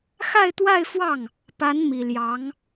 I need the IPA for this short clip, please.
x a˥˧ ɪ̯ t̪ w a˥˧ ɪ̯ f w ɑ˥˩ ŋ | p a˧˥ n m i˨˩ l j ɑ˧˥ ŋ

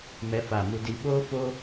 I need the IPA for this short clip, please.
m ɛ˦ f a˦˨ m u˦ d i˦ ɓ o˦ f o˦

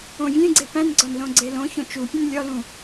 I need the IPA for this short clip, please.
õ vʲ ẽ ɡ͡ǀ e p æ̃ n ɡ͡ǀ ɒ n l õ ɡ͡ǀ e l õ ç õ t͡ʃ u pʲ ũ n lʲ ɒ l ũ

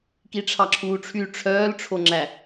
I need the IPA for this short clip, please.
k i ʈ͡ʂʰ ɑ ǁʰ uː ʈ͡ʂʰ y ʈ͡ʂʰ œː l ʈ͡ʂʰ o ŋ͡ǁ æ

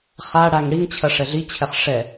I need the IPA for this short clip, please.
χ a ɽ a ŋ ɽ i ŋ t͡ɕʰ ɐ ʂ ɛ ɮ i t͡ɕʰ ɛ χ ʂ ɛ

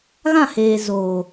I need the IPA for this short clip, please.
ɣ ã˦˨ h eː˨ z oː˨

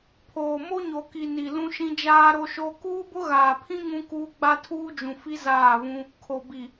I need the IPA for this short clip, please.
pʰ oː˨ m o˦ ɲ o˨ k i˨ n i˨ l ũ˦ ʃ ĩ˦ d͡ʒ aː˦ ɾ o˦ ʃ o˦ k uː˦ b ʊ˦ ɣ aː˨ pʰ ĩ˦ ŋ ũ˦ k uː˦ ɡ͡b a˦ tʰ uː˦ d͡ʒ ũ˨ f i˦ z aː˦˨ v ũ˦ | kʰ o˨ b i˨

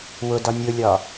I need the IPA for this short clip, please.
w ʊ d ɒ nʲ ʊ lʲ ɒ

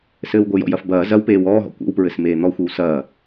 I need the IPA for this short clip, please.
s ɘː w ɡʷ ɘ j ɔ̰ j ɐ f b ɐː z ɐ w p eː w ɔː ɦ ɔ̰ kʷ ḛ w p ɹ ɘ s m eː n̪ ɔ xʷ ɨ w s ɐː

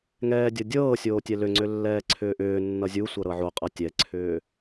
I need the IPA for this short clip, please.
ŋ ɛː dʲ ɤ dʲ ɤː sʲ oː tʲ ɛ l ʏ ŋ͡ǀ ʏ lː ɛː ǀʰ ʏː ʔ ʏː nː ʌ zʲ u sʷ ɤ ɾ ɤ ʕ o qʼ ʌ tʲ ɛ ǀʰ ʏː

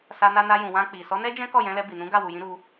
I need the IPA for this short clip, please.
s a˧ n a˧ n a˧ j ũ˨ w ã˧ k͡p i˨ s ɔ˨˦ n ɛ˦ d͡ʒ ɛ̃˦ k ɔ˦˨ j ɛ̃˧ l ɛ˧ b i˨ n ũ˨˦ ɡ a˦˨ w u˨ j ĩ˧ ɾ u˧

